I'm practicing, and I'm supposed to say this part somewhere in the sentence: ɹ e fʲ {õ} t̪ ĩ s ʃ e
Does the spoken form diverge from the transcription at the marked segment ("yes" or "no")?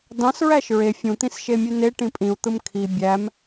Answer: yes